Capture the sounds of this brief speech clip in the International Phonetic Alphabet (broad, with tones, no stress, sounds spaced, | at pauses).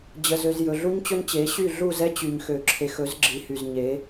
d͡ʑ ə˨ z ø˨ z j ɵ˨ ɮ u˦ ɲ t͡ɕ ɵ˦ n t͡ɕ e˨˦ ɕ y˦˨ ɮ u˦˨ z ɛ˦ t͡ɕ y˨ ɲ x ø˨ ǁʰ e˨ x ɵ˨˦ z ɡ͡ǁ i˨˦ h y˨ z ɲ e˨˦